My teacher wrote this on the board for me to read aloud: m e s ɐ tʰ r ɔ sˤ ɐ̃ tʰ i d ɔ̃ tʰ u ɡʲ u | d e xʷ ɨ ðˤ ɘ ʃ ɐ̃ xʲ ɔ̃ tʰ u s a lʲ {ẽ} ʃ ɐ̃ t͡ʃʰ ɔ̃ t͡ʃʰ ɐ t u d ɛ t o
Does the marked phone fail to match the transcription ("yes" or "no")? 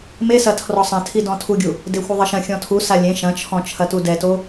no